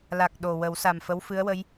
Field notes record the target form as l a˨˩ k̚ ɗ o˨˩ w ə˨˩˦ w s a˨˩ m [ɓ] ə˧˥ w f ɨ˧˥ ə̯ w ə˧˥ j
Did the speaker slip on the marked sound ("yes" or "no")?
yes